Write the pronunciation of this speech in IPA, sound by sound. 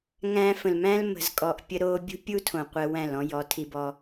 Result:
ŋ æ̃˧ f ə̃˨ l m æ̃˦ l m ə̤˧ z kʼ ɔ˧ ʔ pʲ ə˦ ɾ o˦ bʲ ṳ˦ pʲ u˦ tʰ õ˨ qʷ ɛ˧ w æ̃˦˨ l ɔ̃˦ j ɔ˨˦ tʰ i˧ b ɔ˧

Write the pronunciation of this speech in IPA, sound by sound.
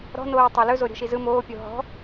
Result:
ɾ ɔ̤ n oː tˤ ɵ l ɵ z o ɾʲ ɔ̤ ʃ i z ɯ m oː pʲ o ɦ ɔ̤

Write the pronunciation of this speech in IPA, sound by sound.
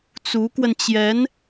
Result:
t͡s u˧˥ k w ə˧ n t͡ɕ j ɛ˧˥ n

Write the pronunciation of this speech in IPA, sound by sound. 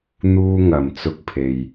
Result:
n̪ uː˥ ŋ ɐ˨˩ m t͡s ʊ˧ k̚ pʰ e˨ j

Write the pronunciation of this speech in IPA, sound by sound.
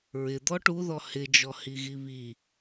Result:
ɹ ɪ d̪ ɔ ʈ u ð ɔ h ɪ d͡ʒ ɔ h i ɣ i β i

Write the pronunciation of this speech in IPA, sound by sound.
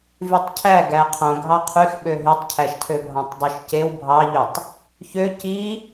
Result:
v y tˤ cʰ æ ɡ æ qʰ õ ɡʱ ɑ qʰ y x ɓ ø ɦ y tˤ cʰ æ ʃ tʰ ø bʱ ɑ̃ tˤ dˤ y ʃ c e w bʱ ɑ ʎ ø tˤ | ç ø c i

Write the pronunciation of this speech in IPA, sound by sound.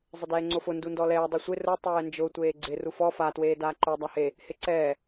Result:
zˤ ɪ d ɛː ŋ͡ǀ o f ʊ n d u n d ɔ l ɛː dˤ ɪ sʷ ɪ r ʊ tˤ ɛː n d͡ʒ ʊ tʷ eː ɡ͡ǀ ɪ r u f ɔ f a t w eː d aː ǃ o dˤ a h e | h ɪ ǀ ɛː

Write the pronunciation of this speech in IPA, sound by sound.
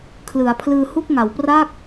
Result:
kʰ l ɯ˩˦ a̯ pʰ l ɯː˧ h u˥˩ k̚ ŋ a˩˦ w p r a˥˩ k̚

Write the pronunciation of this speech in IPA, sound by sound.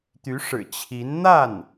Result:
t̪ y˧˥ ʂ ɻ̩˨˩ t͡ɕʰ i˧˥ n n̪ a˥˩ n

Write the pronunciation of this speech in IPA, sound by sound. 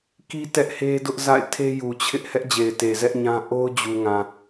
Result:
k i˦ t ɛ˦ ʔ h e˦ d ʊ˦ ʔ z a̰˦˨ ɪ̯ tʰ e˦ j u˨ t͡ɕʰ ɪ˦ ʔ h ɛ˦ ʔ d͡ʑ e˨ ɪ̯ t e˨ z ɛ˦ ʔ ɲ ã˦ ʔ o˦ ʊ̯ d͡ʑ u˨ ŋ ã˨

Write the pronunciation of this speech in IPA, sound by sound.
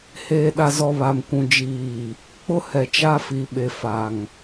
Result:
h eː˨ ɗ a˨ z ɔ˨ β a˨ m kʷ ũ˨ d͡ʒ iː˨ | k͡p ʊ˦ h ɛ˨ t͡ʃ a˦ f i˨ ɓ e˨ f a˨ ŋ

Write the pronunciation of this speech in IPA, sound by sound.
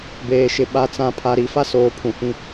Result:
b eː˨ ʃ ɪ˨ ɓ a˨ t͡s ã˨ pʰ a˨ ɾ i˨ f a˦ s oː˨ pʰ ũ˨ h ĩ˦

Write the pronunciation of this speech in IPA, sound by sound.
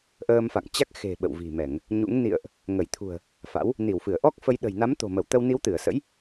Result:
ʔ əː˧ m f a̰˧˨ ŋ t͡ɕ a˦˥ k̚ x e̤˨˩ ɓ ə̰˧˨ w v i̤˨˩ m ɛ˧˩˨ ŋ | ɲ ṵ˧˥ ŋ n ḭ˧˨ ə̯ ʔ | ŋ ə˧˩ j t̪ʰ ṳ˨˩ ə̯ | f a̰˧˥ w | n i˧˩ w f ɨ˧˩ ə̯ ʔ ɔ˦˥ k̚ f ə˧ j ɗ ə̤˨˩ j n a˨˦ m t̪ o̤˨˩ m ə˧˩ w t̪ ə˧ w n i˨˦ w t̪ ɨ˧˩ ə̯ s ə̰˧˥ j

